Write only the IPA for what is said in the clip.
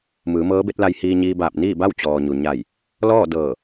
m ɯː˩˧ m ɤː˧˥ b e˧˥ t̚ l a˧ j h iː˧ ɲ iː˧ b aː˧˩ p̚ n iː˥˨ b a˥˨ w t͡ɕ ɔː˩ ɲ u˩ ɲ a˧˩ j | l ɔː˥˨ d ɤː˧˩

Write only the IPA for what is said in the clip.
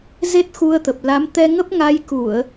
z e˦˥ t̚ x u˧ ə̯ t̪ ə˨˩ p̚ l a˨˦ m t̪ ɛ˧ ŋ ə˦˥ p̚ ŋ a˧ j k u˧˩˨ ə̯

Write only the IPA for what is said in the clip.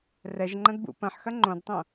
r ɛ ʒ ŋ͡ǃ ɐ̃ d b ṵ p ɐ̃ ħ x ɐ ŋ͡ǃ õ d tˤ õ

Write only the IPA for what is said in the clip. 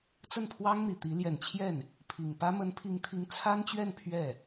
t͡s ə˥˩ n pʰ w ɑ˥ ŋ n̪ i˨˩ t̪ i˧˥ l j ɛ˨˩ n t͡ɕʰ j ɛ˥˩ n | pʰ i˨˩ ŋ p ä˥ m ə˧˥ n pʰ i˧˥ ŋ t̪ʰ i˧˥ ŋ t͡sʰ a˥ n t͡ɕ ɥ ɛ˥˧ n pʰ ɥ ɛ˥˩

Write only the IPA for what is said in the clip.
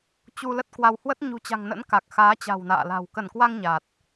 t͡ɕ u˧ l ə˦˥ t̚ k w a˧ w h w ə˦˥ t̚ ɲ ṳ˨˩ t͡ɕ a̤˨˩ ŋ n ə̰˧˥ n k a˨˩ k̚ x aː˨˦ t͡ɕ a̤˨˩ w n a̰ː˧˨ l a̤˨˩ w k ə˧˩ n k w a˧ ŋ ɲ a˨˩ t̚

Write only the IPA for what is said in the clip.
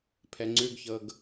pʰ ɛ ŋ͡ǀ ʉ ɡ ç ɤ ɡ

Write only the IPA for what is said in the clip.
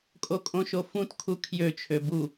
kʼ o kʼ õ ʃ o f ũ t kʰ u kʰ j ø t͡ʃʰ ø b u

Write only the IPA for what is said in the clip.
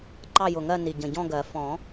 ǃ ɑ˥˧ j ʊ˨˩ ŋ ɜ˥˧ n i˨˩ ɟ ə̃˨˩ ɟ ɔ̃˥˧ ɡ ɜ˨˩˦ f ɔ̃˨˩˦

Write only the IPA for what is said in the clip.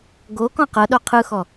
ɡ o k ɔ̃ q ɤ ɗ o qʰ ɯ x ɔ

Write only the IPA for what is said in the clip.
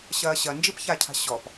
ɕ ɐː ɕ ɐ n d͡ʒ i p ç a cʰ a̤ ɕ ɔ p

